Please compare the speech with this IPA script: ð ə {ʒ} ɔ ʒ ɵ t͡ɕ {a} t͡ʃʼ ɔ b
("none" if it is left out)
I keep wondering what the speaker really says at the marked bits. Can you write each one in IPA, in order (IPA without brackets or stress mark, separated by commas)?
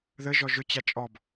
ʒ, a